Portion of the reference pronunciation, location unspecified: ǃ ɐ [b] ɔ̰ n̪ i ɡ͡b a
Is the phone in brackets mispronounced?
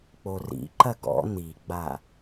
yes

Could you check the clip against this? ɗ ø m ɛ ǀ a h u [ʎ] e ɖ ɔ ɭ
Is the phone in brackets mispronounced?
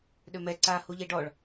no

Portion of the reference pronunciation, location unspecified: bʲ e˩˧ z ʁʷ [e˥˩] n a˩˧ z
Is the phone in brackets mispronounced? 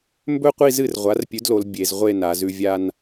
yes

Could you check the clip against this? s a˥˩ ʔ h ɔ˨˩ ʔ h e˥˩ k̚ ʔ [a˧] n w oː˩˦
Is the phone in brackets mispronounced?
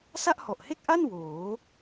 yes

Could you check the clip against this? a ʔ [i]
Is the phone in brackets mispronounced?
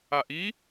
no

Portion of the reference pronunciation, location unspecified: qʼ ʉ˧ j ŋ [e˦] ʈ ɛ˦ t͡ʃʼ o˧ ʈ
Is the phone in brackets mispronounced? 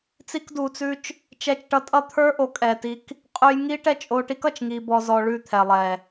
yes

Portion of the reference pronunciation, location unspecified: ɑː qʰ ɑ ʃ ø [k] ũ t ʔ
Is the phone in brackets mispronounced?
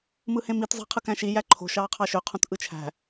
yes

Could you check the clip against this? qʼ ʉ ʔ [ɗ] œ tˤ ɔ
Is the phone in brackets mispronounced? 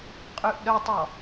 no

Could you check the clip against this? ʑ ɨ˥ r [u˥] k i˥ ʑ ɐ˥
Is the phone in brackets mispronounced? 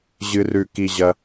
yes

